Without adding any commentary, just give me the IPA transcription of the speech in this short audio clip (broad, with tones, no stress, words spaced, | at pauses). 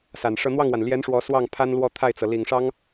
sa˨˩nʂɤ˥˧ n̪wɑ˥˩ŋwa˩nljɛ˧˥n ʂwɔ˧˥swɑ˥˩ŋ pʰa˥nlwɔ˥˧ t̪ʰa˥˩ɪ̯t͡sɤ˩ li˨˩ŋʂɑ˥ŋ